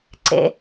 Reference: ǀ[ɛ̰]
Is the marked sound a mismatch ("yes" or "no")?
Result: yes